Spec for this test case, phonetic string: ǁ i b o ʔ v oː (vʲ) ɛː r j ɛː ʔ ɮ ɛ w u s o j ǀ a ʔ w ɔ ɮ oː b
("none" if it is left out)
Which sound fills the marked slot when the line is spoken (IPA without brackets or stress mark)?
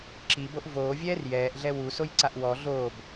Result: vʲ